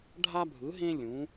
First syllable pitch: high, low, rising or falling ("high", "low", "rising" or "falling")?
high